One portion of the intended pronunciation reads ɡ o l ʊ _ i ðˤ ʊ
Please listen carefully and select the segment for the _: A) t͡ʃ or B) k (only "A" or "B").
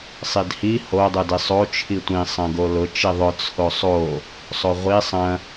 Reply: A